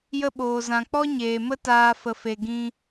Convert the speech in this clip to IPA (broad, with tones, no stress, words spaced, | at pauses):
jə˧ɓoː˨zã˨k͡pɔ˦ ɲeː˨mə˦taː˧ fə˨fe˨ ɡĩ˧